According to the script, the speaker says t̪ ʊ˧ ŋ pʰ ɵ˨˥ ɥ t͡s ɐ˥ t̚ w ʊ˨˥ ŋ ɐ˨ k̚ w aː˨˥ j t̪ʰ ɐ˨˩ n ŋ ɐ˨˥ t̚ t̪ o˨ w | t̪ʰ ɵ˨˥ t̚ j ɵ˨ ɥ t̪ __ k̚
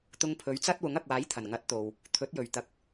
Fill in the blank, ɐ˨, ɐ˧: ɐ˧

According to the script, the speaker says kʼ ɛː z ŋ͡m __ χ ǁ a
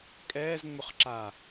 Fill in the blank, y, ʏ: ʏ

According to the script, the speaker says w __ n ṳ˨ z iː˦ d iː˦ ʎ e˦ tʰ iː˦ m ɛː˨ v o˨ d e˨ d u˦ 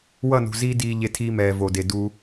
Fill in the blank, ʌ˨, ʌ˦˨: ʌ˦˨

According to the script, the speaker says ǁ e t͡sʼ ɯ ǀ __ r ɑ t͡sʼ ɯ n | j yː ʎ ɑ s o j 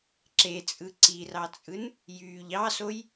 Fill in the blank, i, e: i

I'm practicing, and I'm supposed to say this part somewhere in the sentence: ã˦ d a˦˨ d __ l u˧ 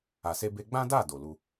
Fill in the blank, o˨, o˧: o˨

